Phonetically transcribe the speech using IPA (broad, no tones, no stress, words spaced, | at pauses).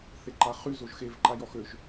θeǃaχy zoʒxevǃa jɔxøʒ